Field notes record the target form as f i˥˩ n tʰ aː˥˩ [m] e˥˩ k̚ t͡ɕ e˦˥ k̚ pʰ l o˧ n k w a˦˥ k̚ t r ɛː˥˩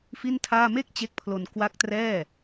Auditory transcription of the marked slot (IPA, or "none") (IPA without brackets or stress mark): m